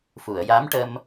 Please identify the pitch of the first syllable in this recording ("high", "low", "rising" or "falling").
low